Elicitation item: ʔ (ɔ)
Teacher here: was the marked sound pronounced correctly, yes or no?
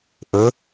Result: no